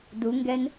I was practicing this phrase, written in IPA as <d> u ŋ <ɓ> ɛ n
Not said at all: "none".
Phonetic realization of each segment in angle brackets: d, ɡ

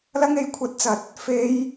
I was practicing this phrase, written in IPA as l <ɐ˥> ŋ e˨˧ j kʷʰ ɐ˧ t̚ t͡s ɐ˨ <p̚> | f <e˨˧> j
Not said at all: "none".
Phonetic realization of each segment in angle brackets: ɐ˥, t̚, e˨˧

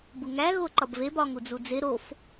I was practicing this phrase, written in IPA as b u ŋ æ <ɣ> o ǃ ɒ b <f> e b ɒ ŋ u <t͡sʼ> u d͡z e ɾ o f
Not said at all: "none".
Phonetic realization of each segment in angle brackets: ɣ, v, d͡z

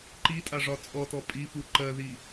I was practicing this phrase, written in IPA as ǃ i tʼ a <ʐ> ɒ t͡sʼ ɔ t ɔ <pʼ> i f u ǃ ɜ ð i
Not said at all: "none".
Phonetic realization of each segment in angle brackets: ʐ, pʼ

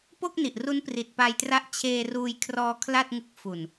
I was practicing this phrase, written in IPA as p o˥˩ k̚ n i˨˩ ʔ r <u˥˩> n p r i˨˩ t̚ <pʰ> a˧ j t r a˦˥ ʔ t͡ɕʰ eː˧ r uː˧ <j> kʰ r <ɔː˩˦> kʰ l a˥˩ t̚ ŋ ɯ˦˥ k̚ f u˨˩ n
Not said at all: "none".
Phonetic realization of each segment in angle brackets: u˦˥, p, j, ɔː˧

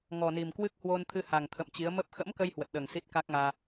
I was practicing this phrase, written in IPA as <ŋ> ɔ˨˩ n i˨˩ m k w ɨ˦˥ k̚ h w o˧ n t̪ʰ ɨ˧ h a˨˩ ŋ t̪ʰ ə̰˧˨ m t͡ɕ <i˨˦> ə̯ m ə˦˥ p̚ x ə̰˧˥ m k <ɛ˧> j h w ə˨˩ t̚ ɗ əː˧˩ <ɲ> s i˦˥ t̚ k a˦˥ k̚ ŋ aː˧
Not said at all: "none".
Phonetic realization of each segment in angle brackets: ŋ, i˨˦, ə˧, ŋ

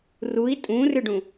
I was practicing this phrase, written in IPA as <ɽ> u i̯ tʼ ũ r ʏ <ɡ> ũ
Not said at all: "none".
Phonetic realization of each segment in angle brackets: r, ɖ

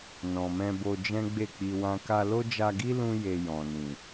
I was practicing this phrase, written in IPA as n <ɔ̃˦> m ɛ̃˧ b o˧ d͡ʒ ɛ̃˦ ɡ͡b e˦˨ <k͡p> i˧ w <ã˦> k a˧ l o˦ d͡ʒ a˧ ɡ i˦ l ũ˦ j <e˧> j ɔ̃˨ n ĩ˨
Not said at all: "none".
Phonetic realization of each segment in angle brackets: ɔ̃˨, k͡p, ã˦, e˧

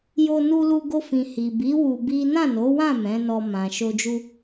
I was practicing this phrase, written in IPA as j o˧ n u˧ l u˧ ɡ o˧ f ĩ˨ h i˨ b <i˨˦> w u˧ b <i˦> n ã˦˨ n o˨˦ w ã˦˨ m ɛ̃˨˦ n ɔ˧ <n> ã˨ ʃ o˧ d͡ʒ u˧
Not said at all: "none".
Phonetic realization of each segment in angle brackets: i˨˦, i˦, m

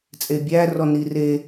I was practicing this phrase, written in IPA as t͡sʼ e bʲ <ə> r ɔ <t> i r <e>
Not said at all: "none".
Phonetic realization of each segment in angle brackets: æ, n, e

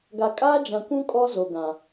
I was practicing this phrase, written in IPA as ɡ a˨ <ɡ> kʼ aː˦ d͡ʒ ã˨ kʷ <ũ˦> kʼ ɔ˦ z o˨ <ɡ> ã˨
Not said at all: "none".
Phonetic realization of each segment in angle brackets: none, ũ˦, ɡ

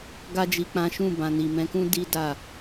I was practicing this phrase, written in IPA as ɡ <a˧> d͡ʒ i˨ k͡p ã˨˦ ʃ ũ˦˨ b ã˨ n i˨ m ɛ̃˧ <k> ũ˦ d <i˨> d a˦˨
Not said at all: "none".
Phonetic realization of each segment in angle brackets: a˧, k, i˦

